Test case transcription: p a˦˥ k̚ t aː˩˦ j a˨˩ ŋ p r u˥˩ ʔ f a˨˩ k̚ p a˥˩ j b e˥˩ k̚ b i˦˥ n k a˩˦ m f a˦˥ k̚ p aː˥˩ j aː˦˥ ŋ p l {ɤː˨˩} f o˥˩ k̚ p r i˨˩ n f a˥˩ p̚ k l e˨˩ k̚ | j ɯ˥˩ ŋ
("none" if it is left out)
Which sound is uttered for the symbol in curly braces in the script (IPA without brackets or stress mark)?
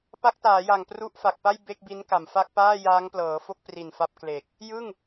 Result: ɤː˩˦